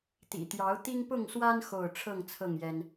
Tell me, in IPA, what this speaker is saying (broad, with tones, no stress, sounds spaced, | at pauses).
t̪ ḭ˨˩ t̪ j ɑ˨˦ ʊ̯ t̪ i˦ ŋ p ʊ˥˨ ŋ s w a˦ n x o˥˨ ʊ̯ ʈ͡ʂʰ ɤ˥˨ ŋ t͡sʰ ɤ˥˨ ŋ j ɛ˦ n